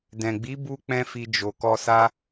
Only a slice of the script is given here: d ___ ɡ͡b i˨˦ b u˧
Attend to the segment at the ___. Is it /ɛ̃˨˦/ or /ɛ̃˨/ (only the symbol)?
ɛ̃˨